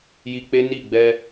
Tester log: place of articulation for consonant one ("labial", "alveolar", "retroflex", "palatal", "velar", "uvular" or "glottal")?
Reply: palatal